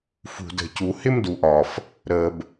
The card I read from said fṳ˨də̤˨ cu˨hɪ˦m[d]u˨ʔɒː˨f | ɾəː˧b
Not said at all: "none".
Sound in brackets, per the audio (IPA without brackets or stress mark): d